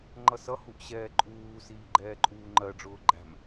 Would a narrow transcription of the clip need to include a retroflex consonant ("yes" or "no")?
yes